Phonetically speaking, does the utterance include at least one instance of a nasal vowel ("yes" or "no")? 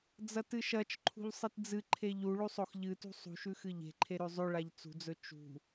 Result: no